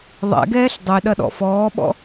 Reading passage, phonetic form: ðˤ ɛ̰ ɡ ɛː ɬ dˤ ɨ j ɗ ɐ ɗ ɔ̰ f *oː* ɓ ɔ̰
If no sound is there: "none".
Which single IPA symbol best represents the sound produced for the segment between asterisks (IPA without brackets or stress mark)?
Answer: ɔː